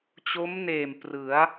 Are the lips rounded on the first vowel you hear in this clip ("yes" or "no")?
yes